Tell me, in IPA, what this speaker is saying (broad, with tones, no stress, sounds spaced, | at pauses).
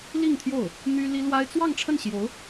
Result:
l i˥˧ ŋ t̪ʰ j o˥˩ ʊ̯ | n̪ y˥ l i˥ l w a˥ ɪ̯ t͡s w ɑ˥˧ ŋ ʈ͡ʂʰ ə˥˩ n ɕ j o˧˥ ʊ̯